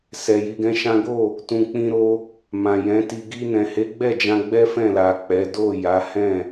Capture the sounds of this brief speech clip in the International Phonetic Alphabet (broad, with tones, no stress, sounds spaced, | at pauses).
s ɛ˨ j i˧ ɡ ɛ̃˦ ʃ ã˦ ɡ o˦˨ | t ũ˨ k͡p ĩ˧ ɾ o˧ | m ã˨ j ɛ̃˨˦ t i˧ ɡ i˧ n ɛ̃˨ h e˨˦ ɡ͡b ɛ˦˨ d͡ʒ ã˧ ɡ͡b ɛ˦ f ɛ̃˦˨ l a˨ k͡p ɛ˨˦ d o˦˨ j a˨˦ h ɛ̃˦˨